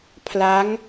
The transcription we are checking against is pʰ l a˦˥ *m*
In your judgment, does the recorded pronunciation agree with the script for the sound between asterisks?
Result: no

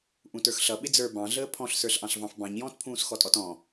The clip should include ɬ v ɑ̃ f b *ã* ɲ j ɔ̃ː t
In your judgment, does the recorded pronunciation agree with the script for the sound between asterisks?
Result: no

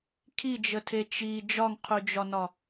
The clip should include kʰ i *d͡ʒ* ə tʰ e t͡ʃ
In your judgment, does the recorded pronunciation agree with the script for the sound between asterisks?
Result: yes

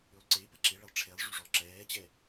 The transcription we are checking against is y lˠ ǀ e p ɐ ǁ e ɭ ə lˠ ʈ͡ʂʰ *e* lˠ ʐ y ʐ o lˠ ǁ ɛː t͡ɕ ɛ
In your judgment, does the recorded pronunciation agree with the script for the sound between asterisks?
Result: yes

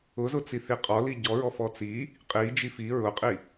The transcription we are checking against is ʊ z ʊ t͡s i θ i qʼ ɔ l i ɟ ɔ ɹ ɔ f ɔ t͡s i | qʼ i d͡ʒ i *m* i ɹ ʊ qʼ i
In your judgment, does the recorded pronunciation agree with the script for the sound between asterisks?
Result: no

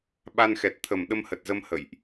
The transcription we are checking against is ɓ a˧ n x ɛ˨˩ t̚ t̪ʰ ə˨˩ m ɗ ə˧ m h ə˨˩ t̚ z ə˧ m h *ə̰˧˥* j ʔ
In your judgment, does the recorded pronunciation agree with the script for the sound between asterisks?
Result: no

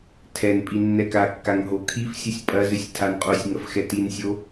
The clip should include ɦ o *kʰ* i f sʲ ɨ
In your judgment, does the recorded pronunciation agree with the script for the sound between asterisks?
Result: yes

